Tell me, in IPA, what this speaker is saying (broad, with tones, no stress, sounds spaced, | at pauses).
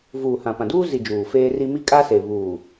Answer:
v uː˨ h ã˨ p ã˨ d uː˦ z i˨ d͡ʒ uː˨ f eː˦ r i˦ m i˦ kʼ a˦ s e˨ β uː˨